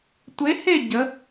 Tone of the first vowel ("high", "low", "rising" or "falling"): rising